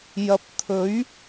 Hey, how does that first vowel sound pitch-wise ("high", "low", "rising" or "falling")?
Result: low